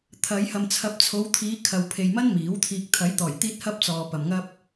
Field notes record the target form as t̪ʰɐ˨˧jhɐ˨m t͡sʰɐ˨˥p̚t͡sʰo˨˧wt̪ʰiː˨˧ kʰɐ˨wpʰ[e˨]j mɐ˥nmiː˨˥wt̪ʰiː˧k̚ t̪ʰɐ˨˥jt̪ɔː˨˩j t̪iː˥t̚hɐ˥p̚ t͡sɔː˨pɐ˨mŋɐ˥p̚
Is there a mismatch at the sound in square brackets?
no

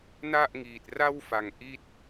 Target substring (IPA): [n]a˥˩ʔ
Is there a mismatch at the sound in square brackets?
no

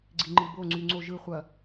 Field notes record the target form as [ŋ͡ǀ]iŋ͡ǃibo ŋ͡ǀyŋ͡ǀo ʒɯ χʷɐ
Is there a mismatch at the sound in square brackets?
yes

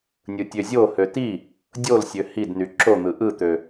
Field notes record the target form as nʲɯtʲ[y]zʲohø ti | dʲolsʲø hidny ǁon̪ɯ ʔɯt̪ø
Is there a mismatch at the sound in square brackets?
yes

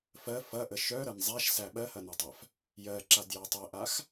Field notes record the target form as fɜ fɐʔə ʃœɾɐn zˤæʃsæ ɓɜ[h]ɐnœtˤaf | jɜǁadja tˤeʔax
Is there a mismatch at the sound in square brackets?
no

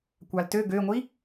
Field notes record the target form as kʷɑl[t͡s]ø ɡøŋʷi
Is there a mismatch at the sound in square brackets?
yes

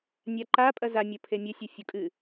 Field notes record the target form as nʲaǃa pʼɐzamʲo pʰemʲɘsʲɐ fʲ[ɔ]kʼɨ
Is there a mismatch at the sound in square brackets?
yes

